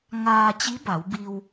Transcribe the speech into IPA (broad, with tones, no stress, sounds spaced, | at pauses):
ŋ aː˧ t͡ɕ i˧˥ b a˩˧ w b i˧ w